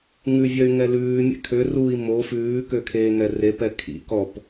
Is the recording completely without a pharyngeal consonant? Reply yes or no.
yes